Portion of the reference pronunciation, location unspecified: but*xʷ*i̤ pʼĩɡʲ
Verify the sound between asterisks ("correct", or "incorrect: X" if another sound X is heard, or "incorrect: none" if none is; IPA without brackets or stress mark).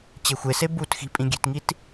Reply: incorrect: x